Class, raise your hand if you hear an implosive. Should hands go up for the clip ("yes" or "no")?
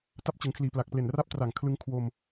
no